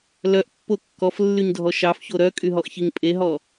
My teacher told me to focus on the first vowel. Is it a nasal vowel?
no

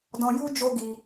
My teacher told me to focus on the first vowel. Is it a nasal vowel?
yes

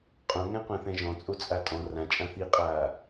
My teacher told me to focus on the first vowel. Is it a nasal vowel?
yes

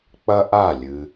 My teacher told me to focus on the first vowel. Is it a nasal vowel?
no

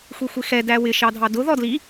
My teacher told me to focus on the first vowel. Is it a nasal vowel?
no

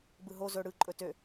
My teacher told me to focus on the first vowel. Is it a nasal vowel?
no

